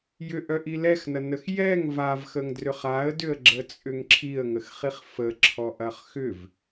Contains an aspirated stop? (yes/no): yes